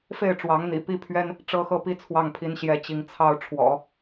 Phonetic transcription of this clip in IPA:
f e˥˩ ɪ̯ ʈ͡ʂ w ɑ˧˥ ŋ n̪ ḭ˨˩ p i˥ pʰ ɥ ɛ˥ n | ʈ͡ʂ ɤ˥ x ɤ˥˧ p i˥˧ t͡sʰ w ɑ˥˩ ŋ pʰ i˥ n ɕ j ɛ˥ t͡ɕ i˧˥ ŋ t͡sʰ ɑ˥ ʊ̯ ʈ͡ʂʰ w ɔ̰˨˩˦

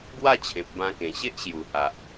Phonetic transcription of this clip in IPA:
ɡ w a˥˧ t͡ɕʰ ẽ˨ p̚ b ã˧ k ẽ˨˩ ɕ e˦ ʔ ɕ j u˨˩ h a˨ ʔ

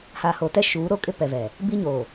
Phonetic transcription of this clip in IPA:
h aː˨ h oː˨ t ɛ˦ ʃ uː˨˦ ɾ o˦ kʼ ɪ˦ p ɛ˨ v ɛ˨ | b i˦ ɲ oː˨

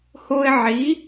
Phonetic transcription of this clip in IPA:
h o˦ ɪ̯ ʕ i˨˥

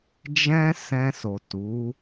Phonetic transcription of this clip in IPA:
d͡ʒ ɛ̃˦ s ɛ̃˧ s o˨ t u˨˦

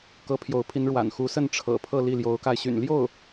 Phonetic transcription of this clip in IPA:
k ɤ˧˥ pʰ j o˧˥ ʊ̯ pʰ i˧˥ n ɻ w a̰˨˩ n x u˧˥ s ə˥˩ n ʈ͡ʂʰ ɤ̰˨˩ pʰ ɤ˥˧ l i˥˩ l j o˧˥ ʊ̯ k a˧ ɪ̯ ɕ y̰˨˩ n l j o˥˩ ʊ̯

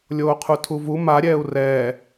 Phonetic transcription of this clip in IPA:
lʲ oː qʰ u tʰ u v u m a ɾʲ ɛː u̯ r ɛː

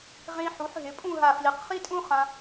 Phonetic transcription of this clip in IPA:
ʁ ĩ˧ ħ u˩˧ ħ ɦ ɪ˩˧ pʼ ũ˥˧ ɦ a˧˩ f l i˩˧ q χ i˥ tʼ ũ˥ χ ã˧

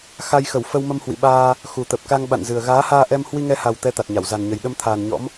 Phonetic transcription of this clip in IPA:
x a˧ j x ə˧˩ w f ə˧ w m ə˧ m h w ḭ˧˨ ɓ aː˧ | x u˨˩ t̪ ə˨˩ p̚ k a˧ ŋ ɓ a̰˧˨ n z ɨ˨˩ ə̯ ɣ aː˨˦ h aː˧ ʔ ɛ˧ m h w i˧ ŋ ɛ˧ h a˨˩ w t̪ ɛ˨˦ t̪ a˨˩ t̚ ɲ a˧˩ w z a˨˩ n ɲ ə˨˩ j ɗ ə˧ m t̪ʰ aː˨˩ n ɲ ɔ̰˧˥ m

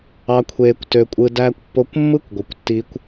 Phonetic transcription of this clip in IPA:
ɑ˧ kʷʰ eː˧ kʷ t ø˧ kʷʼ ɯ˧ d æː˧ kʷ pː o˧ kʷ mː ɯ˦ kʷ ɡʷ ɯ˧ kʷ tː iː˦ kʷ

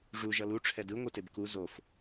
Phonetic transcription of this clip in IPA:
ʐ u ʒ ʌ l u ʈ͡ʂʰ ɛ d ɯ ŋʷ ɯ t e b k u z o f

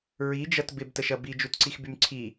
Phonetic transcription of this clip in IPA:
ɹ i d͡ʒ ɐ t b ɪ b t ə ʃ ɐ b i d͡ʒ u t ǀ i x b y m ǀʰ i

